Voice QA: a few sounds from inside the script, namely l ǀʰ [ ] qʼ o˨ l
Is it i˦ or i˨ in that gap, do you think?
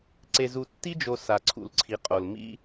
i˨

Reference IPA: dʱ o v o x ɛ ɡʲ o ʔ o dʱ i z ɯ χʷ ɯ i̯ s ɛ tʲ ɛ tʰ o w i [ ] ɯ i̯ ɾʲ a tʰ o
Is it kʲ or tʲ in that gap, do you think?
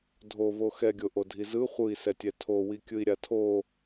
kʲ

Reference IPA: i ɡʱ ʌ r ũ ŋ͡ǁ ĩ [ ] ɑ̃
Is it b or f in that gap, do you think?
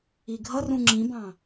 b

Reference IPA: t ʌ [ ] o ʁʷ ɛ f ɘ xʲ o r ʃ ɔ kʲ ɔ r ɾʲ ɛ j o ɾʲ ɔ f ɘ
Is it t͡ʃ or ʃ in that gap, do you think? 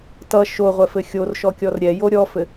ʃ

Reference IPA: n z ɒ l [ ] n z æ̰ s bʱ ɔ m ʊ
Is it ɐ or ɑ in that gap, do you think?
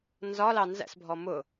ɑ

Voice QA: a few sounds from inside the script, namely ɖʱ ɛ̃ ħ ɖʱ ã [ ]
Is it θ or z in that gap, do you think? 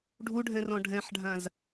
z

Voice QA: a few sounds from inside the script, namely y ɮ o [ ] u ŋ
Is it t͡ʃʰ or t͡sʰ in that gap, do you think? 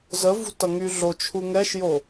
t͡ʃʰ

